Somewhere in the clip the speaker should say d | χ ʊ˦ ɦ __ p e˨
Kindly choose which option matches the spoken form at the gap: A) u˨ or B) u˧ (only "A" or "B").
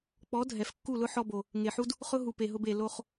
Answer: A